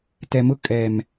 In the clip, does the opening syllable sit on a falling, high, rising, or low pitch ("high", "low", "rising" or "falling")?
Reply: low